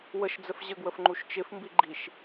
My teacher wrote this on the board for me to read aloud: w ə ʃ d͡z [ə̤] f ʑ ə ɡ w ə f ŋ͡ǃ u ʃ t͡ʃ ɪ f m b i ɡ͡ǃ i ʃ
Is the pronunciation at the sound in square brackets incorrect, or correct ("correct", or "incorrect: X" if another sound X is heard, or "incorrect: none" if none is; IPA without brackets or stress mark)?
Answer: incorrect: ə